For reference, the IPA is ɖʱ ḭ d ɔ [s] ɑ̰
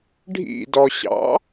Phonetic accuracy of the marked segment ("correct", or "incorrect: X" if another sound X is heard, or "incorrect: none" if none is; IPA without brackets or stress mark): incorrect: ɕ